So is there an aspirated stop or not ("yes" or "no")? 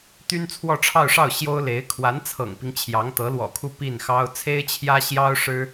yes